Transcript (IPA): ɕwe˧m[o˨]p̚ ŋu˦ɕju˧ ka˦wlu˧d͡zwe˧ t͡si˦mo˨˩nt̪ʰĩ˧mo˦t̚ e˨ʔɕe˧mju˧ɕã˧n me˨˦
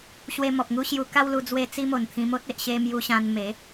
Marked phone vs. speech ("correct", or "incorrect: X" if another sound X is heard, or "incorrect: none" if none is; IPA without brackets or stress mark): incorrect: ɔ˨